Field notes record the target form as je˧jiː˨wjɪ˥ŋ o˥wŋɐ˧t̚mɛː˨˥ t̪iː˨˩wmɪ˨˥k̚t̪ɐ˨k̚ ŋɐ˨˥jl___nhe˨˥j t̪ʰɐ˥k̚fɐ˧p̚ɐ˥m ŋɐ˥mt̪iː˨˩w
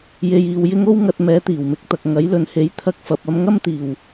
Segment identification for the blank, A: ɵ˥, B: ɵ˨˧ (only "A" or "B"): B